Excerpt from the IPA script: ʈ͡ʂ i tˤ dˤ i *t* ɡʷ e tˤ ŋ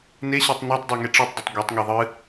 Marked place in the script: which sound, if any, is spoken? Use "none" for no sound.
tˤ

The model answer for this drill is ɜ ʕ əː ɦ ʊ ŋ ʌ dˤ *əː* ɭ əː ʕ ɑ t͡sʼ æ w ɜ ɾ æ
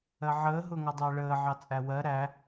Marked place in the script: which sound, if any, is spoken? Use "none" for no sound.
əː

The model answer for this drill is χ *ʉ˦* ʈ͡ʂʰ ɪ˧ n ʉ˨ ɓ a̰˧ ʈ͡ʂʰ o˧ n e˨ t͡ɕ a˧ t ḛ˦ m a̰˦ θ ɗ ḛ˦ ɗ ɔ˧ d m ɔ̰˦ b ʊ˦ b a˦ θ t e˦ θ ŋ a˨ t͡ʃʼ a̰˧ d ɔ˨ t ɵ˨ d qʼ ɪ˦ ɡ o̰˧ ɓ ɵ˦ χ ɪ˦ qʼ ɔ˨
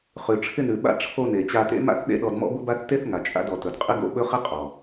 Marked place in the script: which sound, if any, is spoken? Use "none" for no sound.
ʉ˨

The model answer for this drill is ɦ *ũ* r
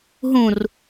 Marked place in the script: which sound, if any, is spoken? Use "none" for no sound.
ũ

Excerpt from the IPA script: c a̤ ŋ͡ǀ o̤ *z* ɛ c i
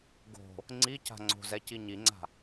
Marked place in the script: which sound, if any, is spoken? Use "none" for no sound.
z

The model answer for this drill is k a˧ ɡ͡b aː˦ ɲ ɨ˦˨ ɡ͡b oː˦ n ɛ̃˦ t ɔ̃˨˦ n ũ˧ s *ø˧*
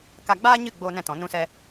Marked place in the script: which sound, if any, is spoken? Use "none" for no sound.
ɛ˧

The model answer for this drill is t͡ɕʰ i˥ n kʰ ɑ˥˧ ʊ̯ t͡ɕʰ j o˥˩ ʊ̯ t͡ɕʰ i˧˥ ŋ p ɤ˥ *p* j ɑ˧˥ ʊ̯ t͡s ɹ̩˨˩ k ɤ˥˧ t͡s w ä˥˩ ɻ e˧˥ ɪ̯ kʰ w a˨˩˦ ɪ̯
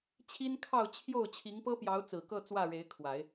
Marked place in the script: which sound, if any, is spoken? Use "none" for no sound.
p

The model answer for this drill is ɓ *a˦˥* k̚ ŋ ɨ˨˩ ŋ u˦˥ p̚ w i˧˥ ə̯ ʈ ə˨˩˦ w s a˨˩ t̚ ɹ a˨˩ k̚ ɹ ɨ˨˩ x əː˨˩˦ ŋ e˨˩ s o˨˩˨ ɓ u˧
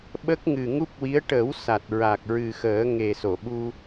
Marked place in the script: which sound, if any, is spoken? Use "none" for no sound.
ə˦˥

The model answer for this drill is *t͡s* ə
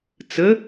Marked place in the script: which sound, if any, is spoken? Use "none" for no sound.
t͡s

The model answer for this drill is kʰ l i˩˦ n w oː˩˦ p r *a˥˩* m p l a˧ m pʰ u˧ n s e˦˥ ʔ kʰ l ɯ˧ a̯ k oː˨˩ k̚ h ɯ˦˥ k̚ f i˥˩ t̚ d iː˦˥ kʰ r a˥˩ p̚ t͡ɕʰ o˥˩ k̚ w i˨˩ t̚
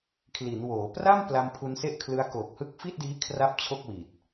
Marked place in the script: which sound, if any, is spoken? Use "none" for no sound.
a˥˩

